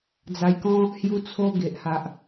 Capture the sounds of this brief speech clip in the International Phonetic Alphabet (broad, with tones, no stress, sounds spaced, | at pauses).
d͡z a˧ j k ɔ̃˦ | h j u˦ t͡sʰ o˦ ɡ e˨ ʔ h a˨ ʔ